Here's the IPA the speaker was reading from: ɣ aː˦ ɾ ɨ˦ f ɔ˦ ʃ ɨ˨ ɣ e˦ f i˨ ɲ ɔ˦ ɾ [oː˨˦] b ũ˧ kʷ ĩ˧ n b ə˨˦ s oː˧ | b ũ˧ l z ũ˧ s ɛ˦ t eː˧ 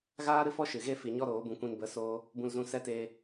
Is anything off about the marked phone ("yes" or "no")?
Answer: no